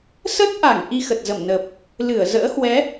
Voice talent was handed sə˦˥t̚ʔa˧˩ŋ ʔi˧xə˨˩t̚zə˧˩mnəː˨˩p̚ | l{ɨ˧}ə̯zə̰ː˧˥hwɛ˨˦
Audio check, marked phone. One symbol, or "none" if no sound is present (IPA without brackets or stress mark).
ɨ˧˩